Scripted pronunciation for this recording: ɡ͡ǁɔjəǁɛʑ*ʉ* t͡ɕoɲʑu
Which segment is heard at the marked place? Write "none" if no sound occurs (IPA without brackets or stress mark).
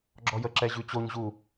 ʉ